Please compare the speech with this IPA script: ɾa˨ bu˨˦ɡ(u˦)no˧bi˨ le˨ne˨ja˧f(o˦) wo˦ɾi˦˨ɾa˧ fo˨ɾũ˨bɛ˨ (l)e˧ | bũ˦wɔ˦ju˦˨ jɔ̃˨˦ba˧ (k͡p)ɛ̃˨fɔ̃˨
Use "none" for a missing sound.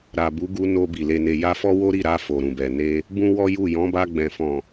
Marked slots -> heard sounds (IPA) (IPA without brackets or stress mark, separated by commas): u˧, ɔ˦, n, ɡ͡b